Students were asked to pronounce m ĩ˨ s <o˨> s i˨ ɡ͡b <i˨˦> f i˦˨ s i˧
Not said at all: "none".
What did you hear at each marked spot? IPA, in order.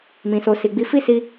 o˨, i˨˦

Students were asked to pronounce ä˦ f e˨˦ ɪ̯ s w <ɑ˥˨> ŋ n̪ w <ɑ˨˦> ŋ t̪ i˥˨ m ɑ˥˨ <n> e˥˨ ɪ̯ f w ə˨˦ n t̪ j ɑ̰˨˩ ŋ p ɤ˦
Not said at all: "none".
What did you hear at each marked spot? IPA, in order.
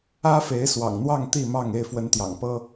ɑ̰˨˩, ɑ˥˨, ŋ

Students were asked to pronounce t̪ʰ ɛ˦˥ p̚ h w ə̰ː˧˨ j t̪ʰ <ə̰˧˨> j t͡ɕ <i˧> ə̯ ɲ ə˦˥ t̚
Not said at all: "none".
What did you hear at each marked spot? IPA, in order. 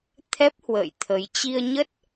ə˨˦, i˧

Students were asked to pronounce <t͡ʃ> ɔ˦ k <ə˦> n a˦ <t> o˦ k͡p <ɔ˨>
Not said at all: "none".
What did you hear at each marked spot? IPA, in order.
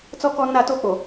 t͡s, ɔ˦, t, o˨

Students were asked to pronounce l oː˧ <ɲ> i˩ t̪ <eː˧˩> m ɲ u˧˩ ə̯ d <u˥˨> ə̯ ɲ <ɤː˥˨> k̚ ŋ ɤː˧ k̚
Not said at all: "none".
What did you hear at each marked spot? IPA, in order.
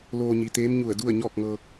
ɲ, eː˧˥, u˥˨, ɔː˥˨

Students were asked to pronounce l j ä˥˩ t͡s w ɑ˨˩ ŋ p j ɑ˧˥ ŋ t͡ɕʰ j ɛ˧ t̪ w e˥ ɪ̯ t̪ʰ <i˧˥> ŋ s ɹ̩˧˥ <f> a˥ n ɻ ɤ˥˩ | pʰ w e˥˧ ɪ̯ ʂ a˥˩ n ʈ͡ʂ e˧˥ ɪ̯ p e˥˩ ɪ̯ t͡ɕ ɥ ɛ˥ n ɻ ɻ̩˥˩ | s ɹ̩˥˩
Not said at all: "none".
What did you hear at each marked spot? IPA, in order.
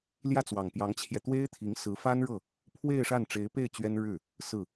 i˧˥, f

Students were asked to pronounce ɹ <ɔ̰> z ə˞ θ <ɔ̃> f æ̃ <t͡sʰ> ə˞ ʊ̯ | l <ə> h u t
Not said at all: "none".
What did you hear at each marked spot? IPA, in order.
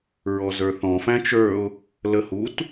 ɔ, ɔ̃, t͡ʃ, ə

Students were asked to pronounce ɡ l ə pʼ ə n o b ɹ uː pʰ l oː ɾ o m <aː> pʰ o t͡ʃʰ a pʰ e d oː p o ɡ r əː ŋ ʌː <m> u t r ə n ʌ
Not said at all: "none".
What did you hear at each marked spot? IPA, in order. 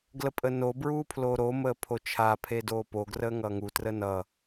əː, ŋ

